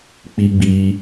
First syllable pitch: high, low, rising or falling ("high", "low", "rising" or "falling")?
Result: high